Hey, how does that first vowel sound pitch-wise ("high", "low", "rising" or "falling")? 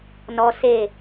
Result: high